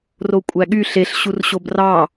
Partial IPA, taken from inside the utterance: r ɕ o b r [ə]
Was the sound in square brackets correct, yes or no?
no